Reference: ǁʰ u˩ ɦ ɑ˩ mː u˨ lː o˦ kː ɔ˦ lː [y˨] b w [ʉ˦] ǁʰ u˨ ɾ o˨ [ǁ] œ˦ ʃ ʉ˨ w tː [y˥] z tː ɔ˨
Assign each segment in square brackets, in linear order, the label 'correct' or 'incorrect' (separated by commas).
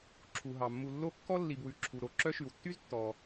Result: incorrect, incorrect, correct, correct